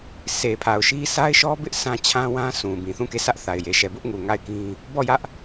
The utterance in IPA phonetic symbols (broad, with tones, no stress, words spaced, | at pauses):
sʰe˨pʰa˨ʊ̯ʃi˦ sa˦ɪ̯ʃɔ˦bɪ˦ʔ sã˦t͡ɕʰã˦wã˦sʰũ˨ bĩ˨θũ˦˨ke˦˨ sä˦ʔθa˨ɪ̯ je˨ʃɛ˨bʊ˦ʔŋu˨ ŋa˦˨ɪ̯kĩ˦ | bɔ˦˨jä˦ʔ